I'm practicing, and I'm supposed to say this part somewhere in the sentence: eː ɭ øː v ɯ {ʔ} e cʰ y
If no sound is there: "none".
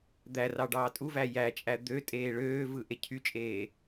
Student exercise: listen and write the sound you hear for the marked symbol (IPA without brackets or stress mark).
ʔ